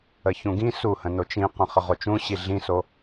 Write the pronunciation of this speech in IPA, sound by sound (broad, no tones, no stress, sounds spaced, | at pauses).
ə ç ũ ɡ ĩ s u h ə̃ n o t͡ʃ ĩ q ə̃ χ ə ʁ o t͡ʃ ũ ɕ i ɮ ĩ s o